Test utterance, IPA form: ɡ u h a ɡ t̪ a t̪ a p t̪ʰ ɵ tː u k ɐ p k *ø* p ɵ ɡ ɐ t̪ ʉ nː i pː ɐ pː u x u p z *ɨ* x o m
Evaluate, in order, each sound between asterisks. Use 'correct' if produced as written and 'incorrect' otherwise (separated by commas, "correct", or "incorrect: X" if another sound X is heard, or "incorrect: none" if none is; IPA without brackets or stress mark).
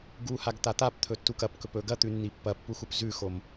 incorrect: ɵ, incorrect: ʉ